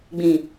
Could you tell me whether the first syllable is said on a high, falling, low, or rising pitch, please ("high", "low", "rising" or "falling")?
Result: low